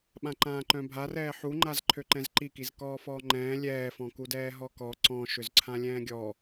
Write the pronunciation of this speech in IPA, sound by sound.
ɓ ã ǃ ãː ǃ œ̃ bʱ a r ɛː ħ u ŋ͡ǃ a z ǃʰ ø ǃ ɛ̃ z ǃ i k i z k ɔː f ɔː ŋ͡ǃ ɛ̃ː lʲ ɛː f ɔ̃ k u d ɛː ɦ ɔ k ɔ ǀ ɔ̃ ʃ ʏ z ǀʰ ã lʲ ɛ̃ː ɡʲ ɔ

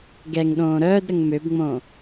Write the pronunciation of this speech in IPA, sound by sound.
ɡ ɛ ŋ ɗ õː ɾ œː d ɾ ə ŋ m ø b ŋ͡m õ

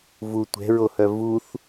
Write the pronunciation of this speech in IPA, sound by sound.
v u tʷ ɛ̤ ɹ o h œ v u θ

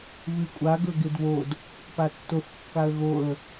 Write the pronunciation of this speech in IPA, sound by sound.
β ɨ kʷʼ a ɡ ɵ ɡ e d β o d | p a tː o θ kː a ə̯ ɣ o ə̯

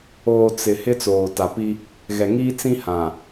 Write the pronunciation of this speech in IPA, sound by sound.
oː˨ t͡s ɪ˨ h ɪ˦ t͡s oː˨ t a˨ p i˦ | ɣ ɛ˨ ŋ iː˦ t͡s ĩ˦ h ã˨

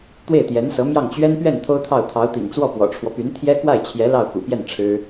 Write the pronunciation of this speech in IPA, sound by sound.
t̪ w e˥˩ ɪ̯ t̪ j ɛ˧˥ n s ɤ˧˥ m j ɑ˥˩ ŋ t͡ɕ ɥ ɛ˥ n p ɥ ɛ˥˩ n t̪ʰ o˥ ʊ̯ t̪ʰ ɑ˥˩ ʊ̯ t̪ʰ ɑ˧˥ ʊ̯ t̪ ḭ˨˩ ŋ t͡s w ɔ˥˩ p w ɔ̰˨˩ ʈ͡ʂʰ w ɔ˦ p y˧˥ n t̪ʰ j ɛ˥ k w a˥˩ ɪ̯ t͡ɕʰ j ɛ˧˥ l ɑ˥˩ ʊ̯ k ṵ˨˩ p j ɛ˥˩ n ʈ͡ʂʰ ɻ̩˥

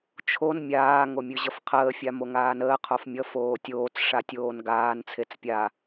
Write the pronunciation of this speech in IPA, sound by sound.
t͡ʃʰ o n mʲ aː ŋ o mʲ ʉ ʑ ʌ f qʰ əː fʲ a m o ŋ aː n əː qʰ o f mʲ ʌ f oː tʲ oː t͡s ʂ a tʲ oː n ɡ aː n t͡sʰ e t͡s pʲ a

